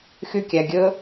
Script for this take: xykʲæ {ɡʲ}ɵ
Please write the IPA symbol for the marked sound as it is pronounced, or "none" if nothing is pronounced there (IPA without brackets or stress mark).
ɡʲ